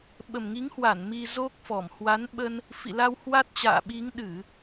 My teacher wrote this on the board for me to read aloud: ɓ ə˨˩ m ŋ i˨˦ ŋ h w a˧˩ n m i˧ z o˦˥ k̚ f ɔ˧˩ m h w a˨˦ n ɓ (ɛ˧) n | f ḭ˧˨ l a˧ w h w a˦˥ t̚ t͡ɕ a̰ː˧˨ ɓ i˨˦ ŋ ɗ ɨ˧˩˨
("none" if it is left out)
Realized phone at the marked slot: ə˧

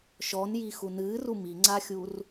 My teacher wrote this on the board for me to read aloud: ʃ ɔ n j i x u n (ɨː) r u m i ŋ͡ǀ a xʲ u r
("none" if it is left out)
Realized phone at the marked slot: ɨː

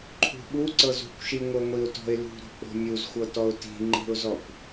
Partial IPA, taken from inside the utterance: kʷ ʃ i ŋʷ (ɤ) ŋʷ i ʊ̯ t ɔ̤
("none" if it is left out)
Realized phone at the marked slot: ɤ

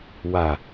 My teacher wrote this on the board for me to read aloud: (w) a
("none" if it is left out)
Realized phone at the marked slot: w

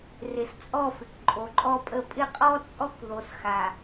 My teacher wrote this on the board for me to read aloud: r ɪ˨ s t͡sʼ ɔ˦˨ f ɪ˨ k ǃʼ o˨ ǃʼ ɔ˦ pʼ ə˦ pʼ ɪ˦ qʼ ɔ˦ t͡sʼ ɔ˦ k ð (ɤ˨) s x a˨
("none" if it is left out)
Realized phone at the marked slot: o˨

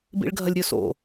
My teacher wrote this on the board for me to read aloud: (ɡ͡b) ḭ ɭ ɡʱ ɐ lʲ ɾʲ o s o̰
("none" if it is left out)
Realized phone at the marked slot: b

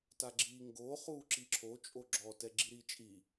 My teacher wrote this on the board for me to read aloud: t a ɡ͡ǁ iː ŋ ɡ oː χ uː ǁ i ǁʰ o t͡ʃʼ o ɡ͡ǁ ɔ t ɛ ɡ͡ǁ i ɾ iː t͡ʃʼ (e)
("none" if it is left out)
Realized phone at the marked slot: i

